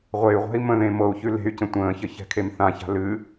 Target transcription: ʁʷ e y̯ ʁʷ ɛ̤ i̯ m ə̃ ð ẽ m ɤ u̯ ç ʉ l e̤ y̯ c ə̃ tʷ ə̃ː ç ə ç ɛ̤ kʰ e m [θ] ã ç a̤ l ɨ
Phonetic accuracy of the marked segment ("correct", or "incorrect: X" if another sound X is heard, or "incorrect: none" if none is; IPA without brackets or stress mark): correct